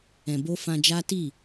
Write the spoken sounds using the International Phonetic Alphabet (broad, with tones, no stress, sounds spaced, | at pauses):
ɛ̃˧ b o˦ f ã˧ d͡ʒ a˦ t i˦˨